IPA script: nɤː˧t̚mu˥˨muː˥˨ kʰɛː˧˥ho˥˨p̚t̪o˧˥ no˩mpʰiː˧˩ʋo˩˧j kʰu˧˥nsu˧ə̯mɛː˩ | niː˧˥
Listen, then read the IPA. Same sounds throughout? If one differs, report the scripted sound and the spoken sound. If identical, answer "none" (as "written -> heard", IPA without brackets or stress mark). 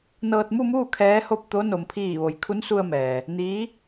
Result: none